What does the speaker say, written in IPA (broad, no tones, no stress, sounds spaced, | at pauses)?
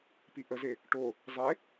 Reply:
p i ʔ ə z e | ʈ o | zˤ e